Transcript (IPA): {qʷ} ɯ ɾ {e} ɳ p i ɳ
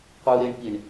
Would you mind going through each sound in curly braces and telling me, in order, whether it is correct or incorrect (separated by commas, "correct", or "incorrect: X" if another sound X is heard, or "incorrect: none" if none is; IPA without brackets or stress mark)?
correct, correct